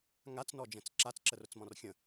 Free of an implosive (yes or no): yes